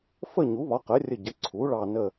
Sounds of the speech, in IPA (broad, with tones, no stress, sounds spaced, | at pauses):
f ə˦˨ ɲ u˩˥ β ɒ˩˥ q ə˩˥ rʲ ə˦˨ ɟ ə˩˥ ǀʰ u˩˥ ɭ ɑ˦˨ n ə˦˨